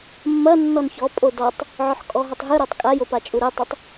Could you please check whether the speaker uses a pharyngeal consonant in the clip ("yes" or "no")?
yes